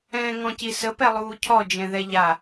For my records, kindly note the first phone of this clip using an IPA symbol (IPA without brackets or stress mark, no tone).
ɛ̃ː